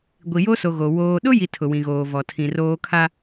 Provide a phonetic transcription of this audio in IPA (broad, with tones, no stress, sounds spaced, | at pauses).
ɡʷ i˨ j o˦ s o˨ ɣ o˨ w oː˨ ɗ ʊ˦ j i˨ tʰ ʊ˨ w ĩ˨ ɣ oː˨ v ɔ˨ tʰ ĩ˨ r oː˦ kʰ a˦